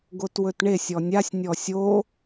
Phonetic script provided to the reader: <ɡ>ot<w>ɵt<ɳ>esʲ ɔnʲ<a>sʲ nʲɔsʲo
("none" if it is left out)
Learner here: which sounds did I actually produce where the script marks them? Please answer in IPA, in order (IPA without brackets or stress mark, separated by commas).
ɡ, w, ɳ, a